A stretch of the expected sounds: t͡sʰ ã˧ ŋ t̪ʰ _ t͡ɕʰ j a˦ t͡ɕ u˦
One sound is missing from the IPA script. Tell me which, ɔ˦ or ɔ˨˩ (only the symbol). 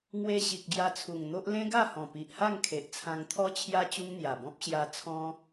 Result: ɔ˦